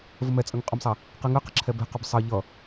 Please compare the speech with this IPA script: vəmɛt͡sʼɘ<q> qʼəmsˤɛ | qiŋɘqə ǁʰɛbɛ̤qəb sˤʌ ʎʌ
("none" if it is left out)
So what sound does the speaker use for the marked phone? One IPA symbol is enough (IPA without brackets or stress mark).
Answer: ŋ